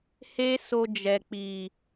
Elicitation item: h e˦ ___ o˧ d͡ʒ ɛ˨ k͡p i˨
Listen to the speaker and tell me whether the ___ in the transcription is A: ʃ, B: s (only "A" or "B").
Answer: B